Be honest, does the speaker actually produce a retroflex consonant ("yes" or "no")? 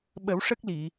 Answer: yes